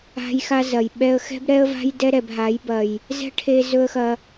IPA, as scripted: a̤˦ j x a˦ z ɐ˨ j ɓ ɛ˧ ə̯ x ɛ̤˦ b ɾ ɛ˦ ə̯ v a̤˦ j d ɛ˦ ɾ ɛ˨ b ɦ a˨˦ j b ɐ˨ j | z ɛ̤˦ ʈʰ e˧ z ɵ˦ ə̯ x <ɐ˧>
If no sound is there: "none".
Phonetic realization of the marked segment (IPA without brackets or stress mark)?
ɐ˧